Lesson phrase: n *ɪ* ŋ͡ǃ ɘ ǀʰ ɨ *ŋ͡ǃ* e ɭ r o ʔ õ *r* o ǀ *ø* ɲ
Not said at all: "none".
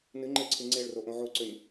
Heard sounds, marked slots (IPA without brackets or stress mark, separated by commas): ɨ, ŋ͡ǀ, ʕ, ø